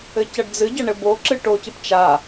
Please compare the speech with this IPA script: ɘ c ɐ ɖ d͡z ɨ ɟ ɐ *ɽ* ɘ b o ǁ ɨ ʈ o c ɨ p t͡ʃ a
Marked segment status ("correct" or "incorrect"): incorrect